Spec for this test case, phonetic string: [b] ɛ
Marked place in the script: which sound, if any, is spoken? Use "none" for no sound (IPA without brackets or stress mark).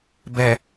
b